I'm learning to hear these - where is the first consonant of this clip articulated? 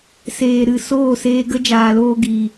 tongue tip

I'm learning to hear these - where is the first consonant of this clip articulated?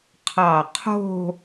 uvula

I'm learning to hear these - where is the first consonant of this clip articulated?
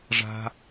retroflex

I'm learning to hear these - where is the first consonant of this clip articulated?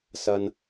tongue tip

